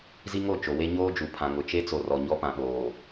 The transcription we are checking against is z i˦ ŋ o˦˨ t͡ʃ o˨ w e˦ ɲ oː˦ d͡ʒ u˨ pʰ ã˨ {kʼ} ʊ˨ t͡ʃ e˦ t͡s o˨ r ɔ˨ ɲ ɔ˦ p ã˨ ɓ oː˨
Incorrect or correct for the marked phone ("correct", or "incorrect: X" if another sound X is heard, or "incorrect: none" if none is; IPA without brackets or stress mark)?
incorrect: ŋ